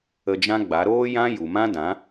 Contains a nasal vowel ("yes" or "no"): yes